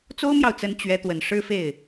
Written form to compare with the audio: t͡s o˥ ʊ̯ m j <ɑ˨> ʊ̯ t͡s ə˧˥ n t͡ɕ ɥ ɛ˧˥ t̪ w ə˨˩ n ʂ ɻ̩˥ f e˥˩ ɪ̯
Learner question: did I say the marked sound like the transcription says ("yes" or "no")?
yes